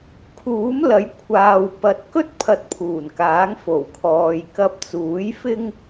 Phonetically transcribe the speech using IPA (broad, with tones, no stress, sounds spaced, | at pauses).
kʰ uː˨˥ m l ɐ˨˥ j kʷʰ aː˨ w p ɐ˨ t̚ k ɵ˥ t̚ pʰ ɐ˧ t̚ pʰ uː˨˩ n k aː˨˥ ŋ f o˨˩ w kʰ ɔː˨ j k ɐ˧ p̚ t͡s uː˨˥ j f ɪ˥ ŋ